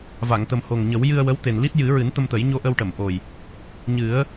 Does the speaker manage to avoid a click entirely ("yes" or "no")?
yes